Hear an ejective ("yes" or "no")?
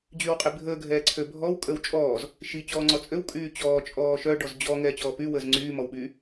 yes